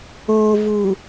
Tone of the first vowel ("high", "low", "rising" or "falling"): low